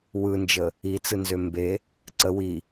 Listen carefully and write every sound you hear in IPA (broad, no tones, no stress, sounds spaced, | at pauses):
w ɯ n d͡ʒ ə | i t͡s ɯ n z ø m b e | ǀ ə w i